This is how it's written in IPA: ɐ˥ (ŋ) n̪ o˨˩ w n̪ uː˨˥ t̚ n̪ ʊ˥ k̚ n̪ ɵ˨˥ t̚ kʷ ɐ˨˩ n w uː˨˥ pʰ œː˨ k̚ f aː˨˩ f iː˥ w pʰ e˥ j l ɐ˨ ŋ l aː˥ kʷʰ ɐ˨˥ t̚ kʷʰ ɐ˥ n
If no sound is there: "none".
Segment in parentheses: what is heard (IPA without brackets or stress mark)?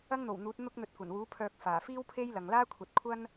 ŋ